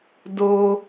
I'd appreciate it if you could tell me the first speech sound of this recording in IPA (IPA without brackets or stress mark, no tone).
d